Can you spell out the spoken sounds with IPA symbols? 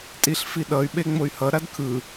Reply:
tʼ i ɬ f i ɗ ʌ y̯ ɓ e ŋ͡m o y̯ h ʌ ɾ a d kʰ ɯ

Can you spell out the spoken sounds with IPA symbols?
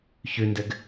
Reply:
ç ʉ n d ɘ ɡ

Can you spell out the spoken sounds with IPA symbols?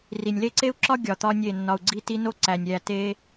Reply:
r i˨ nʲ l e˦˨ ǀ e˦ u̯ ǁ ɒ˦ ɡʲ ɒ˨ t̪ ɒ˦ nʲ e˦˨ nː ɒ˨ u̯ ɡ͡ǀ i˦˨ t i˦ n o˦ ǀ æ˨ nʲ ɾʲ æ˦˨ t e˦

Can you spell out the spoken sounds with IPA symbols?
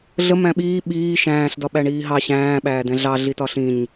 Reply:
ɮ ə m æ̃ ɓ iː ɓ iː ʃ æ̃ː ɬ d ɒ ɓ æ ɳ iː ɦ ɑ ɕ æ̃ː ɓ æː d ɛ̃ ɮ ɑ ɮ i t ɒ ɬ ĩ ɲ

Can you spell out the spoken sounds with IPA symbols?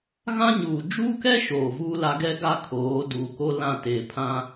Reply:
ɣ ã˦ ɲ uː˨ d͡ʒ uː˦ k ɛ˦ ʃ oː˨ v uː˦ l a˦ ɡ ɛ˦ ɡ a˦ kʰ oː˨˦ d uː˨ k o˦ l ã˦˨ t eː˨ pʰ ã˦

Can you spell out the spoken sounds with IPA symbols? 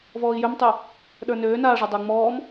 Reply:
v ɔː i̯ j ø m tˤ ø | ɗ ə˞ n øː n aː ʐ ɐ dˤ ɐ u̯ ŋ͡m ɔː m

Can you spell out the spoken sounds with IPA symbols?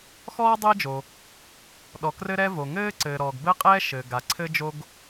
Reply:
x ɔː˥ dˤ ɘː˥ d͡ʒ o˩ | ɗ ɔ˩ k r ɘ˥ ɾ ɛ˥ v o˩ ŋ ɘː˥ ǀ ɘː˩ ɾ ɔː˩ ɡ b ɘ˥ qʼ ɛː˥ ʃ ɘː˩ ɡ a˩ ǀʰ ɘ˥ d͡ʒ o˥ ɡ

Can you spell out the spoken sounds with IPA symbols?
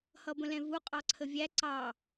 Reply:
h ʌ b ə̃ l ɛ̃ v u qʼ ɑ ǀʰ ə vʲ æ ǀ ɑ

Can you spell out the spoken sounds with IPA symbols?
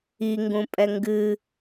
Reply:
i ŋ ɡ ũ pʼ ɛ ŋ ɡ ɨ

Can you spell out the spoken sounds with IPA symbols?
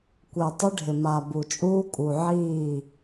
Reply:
kʷ e˨ tˤ ɪ˦ ɖʱ ɪ˨ m a˨ b u˨ t͡ʃʼ uː˦ kʼ u˨ ʕ iː˦˨

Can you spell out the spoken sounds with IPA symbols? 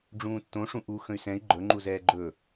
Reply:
ɖ͡ʐ ũː tː õ ʂ ũ ʔ u x ə̃ y̯ s ɛ̃ i̯ ɡ͡ǃ ɵ ŋ͡ǃ u z ɛː ɡ͡ǃ ɵ

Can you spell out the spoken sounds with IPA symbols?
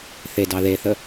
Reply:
θ e d ɑ ð e θ ə

